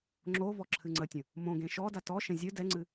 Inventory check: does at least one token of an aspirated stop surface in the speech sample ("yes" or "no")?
yes